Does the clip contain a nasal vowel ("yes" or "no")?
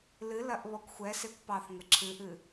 no